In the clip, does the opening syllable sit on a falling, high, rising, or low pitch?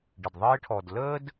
low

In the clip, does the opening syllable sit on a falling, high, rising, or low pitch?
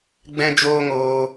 high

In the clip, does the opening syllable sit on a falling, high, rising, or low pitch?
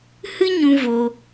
high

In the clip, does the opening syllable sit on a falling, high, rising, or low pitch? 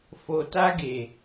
low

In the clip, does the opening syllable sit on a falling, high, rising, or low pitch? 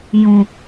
low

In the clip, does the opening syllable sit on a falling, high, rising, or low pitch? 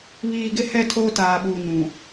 low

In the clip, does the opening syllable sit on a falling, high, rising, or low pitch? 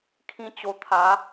high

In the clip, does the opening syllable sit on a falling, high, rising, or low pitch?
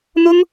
high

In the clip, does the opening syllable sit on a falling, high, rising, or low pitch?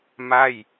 falling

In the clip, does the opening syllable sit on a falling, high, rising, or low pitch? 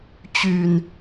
low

